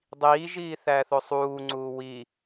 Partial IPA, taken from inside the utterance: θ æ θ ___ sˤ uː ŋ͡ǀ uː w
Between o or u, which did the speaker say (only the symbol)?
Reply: o